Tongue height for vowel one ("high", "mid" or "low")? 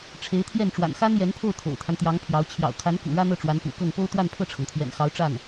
mid